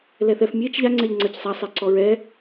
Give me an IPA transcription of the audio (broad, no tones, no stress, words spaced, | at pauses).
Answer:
lɛθɛf mʲet͡ʃ ʎaŋ͡ǀɛʎ ŋ͡ǀɜcsˤa sˤɛǀɔɹɛ